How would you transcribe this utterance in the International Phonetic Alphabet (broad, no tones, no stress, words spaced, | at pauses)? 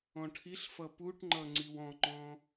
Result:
ɔ̃ʈʰiɬfʌ puʈŋ͡ǃʌ ŋ͡ǀiwɔ̃ŋ͡ǃɔ̃